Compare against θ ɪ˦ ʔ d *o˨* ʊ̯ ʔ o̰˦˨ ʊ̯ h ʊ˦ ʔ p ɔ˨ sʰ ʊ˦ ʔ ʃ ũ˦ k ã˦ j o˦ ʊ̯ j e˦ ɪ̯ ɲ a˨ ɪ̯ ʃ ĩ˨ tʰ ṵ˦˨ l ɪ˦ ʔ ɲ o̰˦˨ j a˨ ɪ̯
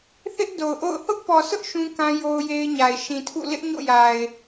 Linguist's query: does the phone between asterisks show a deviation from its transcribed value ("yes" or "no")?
no